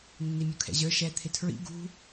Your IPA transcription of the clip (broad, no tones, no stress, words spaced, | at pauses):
nːimʲukʰɛ̰ʑə˞ ʃɛ t̪ʰɪtʰɹḭ ɡṳ